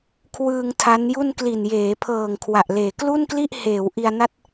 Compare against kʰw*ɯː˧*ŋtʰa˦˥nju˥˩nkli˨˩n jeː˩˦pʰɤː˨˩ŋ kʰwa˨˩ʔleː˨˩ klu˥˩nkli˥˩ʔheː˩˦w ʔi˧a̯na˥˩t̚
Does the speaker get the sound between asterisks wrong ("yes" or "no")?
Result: no